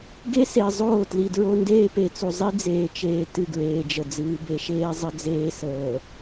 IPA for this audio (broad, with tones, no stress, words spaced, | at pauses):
ɡe˦se˨zˤoː˦˨ tli˨dɹo˦ ndeː˦pe˨t͡su˨zˤi˦ d͡zeː˨t͡ʃeː˨ tɨ˦˨ɡɹeː˨d͡ʒə˨ d͡zɨː˨be˨ʃeː˦ zˤə˦d͡zeː˦səː˨